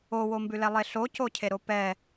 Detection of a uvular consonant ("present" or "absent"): absent